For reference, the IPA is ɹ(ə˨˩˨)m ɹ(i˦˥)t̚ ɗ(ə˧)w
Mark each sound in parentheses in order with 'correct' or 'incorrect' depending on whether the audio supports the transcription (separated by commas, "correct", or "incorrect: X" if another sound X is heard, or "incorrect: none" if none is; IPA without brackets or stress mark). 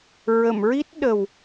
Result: correct, correct, incorrect: ə˨˩